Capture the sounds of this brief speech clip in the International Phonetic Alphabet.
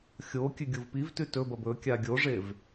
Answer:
xʲo kʲʉɡʲuvpivtʉ tɵbɐb ɵ kʲaɡʲoʐev

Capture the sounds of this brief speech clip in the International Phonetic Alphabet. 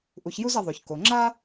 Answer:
ʔu˨˦çju˥zɐ˨˦ðˤo˨ç ko˨ŋ͡ǁa˥

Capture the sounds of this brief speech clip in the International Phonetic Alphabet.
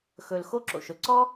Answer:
xɵ˩l xo˥ǁo̰˩ʃɵ˩ ǀɔ˥

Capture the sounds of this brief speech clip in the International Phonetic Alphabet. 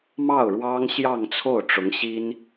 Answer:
mɑ˥˩ʊ̯ɻwɑ˥ŋ ɕjɑ˥˧ŋt͡sʰo˥˩ʊ̯ ʈ͡ʂʊ˧˥ŋɕi˥n

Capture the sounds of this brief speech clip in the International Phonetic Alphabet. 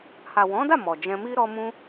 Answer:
ha˨wɔ̃˨˦da˦˨ mɔ˨d͡ʒɛ̃˧mi˦ ɾɔ˦mũ˦

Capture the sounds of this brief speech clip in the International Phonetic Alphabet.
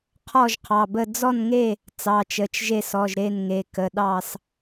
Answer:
qʰɔ˥˨ʒqʰɑ˩˧˩bə˥˨ d͡zɔ˥˨nŋe˥˨ | t͡sɑ˩˧˩t͡ʃə˩˧˩t͡ʃ ʒe˥˨sɔ˩˧˩ʒ ɾe˥˨nŋe˩˧˩ kə˩˧˩ɗɑ˥˨s

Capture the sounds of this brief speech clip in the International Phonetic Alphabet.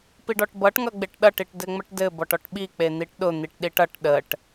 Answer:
piɖɔʈbʌʈ ŋʌɡ͡beʈɗʌʈ iʈdɘŋ͡məʈdɘ bɔʈɔʈɓi k͡pen̪iʈɗʊ n̪iʈɗiʈʌʈ ɗəʈ

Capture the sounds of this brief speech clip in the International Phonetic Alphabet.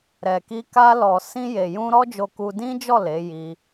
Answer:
ɾɛ˨ki˧ ka˧lɔ˨ sĩ˧je˨jũ˧ ɾɔ˦d͡ʒo˧ku˧ dĩ˦d͡ʒɔ˦˨ le˨˦ ji˧

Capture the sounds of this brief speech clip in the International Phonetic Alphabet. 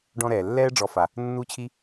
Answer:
ɖɔ̃˦ɾɛː˩ lːɛː˥ɖ͡ʐɔ˨fa˩ | nːu˥t͡ɕʰi˥

